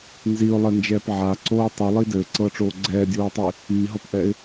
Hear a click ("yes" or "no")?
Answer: yes